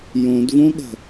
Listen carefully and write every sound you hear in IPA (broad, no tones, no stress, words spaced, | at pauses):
jõdvõɠə̤